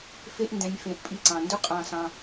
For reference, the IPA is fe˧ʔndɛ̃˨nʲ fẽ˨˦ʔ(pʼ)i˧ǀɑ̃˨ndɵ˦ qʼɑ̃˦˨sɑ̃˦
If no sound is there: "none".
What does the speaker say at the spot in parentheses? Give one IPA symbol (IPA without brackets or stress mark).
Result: pʼ